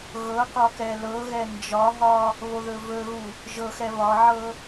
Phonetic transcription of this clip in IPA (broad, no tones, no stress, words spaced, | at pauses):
ɣɤqɒ kɛlɤɣɛ nd͡ʒɒɦɒ | βoðɵvɵɣu | ʒɤxɛ βɒʕɤ